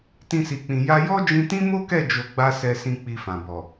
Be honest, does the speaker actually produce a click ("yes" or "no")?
no